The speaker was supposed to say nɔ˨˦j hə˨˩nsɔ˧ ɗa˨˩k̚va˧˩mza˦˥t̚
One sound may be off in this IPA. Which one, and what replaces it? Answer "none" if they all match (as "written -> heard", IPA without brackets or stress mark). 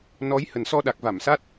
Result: z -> s